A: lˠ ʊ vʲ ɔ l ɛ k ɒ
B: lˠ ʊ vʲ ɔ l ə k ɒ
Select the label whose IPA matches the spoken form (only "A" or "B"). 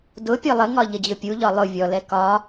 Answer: A